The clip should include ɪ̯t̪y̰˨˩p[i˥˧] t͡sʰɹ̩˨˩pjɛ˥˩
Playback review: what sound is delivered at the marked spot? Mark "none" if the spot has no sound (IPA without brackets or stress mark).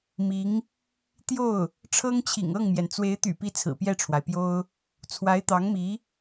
i˧˥